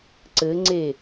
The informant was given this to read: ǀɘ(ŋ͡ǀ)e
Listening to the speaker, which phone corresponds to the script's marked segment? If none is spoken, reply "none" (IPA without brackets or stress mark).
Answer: ŋ͡ǀ